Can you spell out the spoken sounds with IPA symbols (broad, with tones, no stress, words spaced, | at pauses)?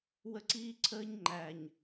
wə˦ǀiː˦ǀʰəː˦ɲŋ͡ǃæ˨ɲ